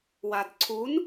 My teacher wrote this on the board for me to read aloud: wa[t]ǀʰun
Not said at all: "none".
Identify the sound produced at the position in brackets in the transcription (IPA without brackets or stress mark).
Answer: d